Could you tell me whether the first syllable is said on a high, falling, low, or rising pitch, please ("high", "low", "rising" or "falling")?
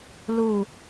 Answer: low